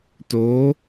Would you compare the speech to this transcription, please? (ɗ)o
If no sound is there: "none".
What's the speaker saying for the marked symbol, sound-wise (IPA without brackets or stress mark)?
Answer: t